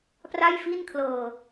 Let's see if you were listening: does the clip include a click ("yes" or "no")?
no